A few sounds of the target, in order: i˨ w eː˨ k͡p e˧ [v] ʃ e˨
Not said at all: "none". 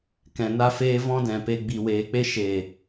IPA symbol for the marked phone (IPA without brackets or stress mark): none